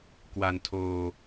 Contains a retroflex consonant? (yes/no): no